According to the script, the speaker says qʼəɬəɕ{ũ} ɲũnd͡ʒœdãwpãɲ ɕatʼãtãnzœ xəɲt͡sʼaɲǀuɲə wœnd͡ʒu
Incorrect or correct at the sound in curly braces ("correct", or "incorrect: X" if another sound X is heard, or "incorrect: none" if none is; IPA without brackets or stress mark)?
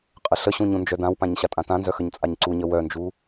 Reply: correct